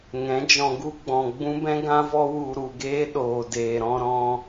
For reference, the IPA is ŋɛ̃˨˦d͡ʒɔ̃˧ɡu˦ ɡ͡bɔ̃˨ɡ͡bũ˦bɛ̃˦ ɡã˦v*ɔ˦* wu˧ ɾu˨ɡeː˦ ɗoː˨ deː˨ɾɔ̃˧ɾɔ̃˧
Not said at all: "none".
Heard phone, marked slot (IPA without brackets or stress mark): ɔ˦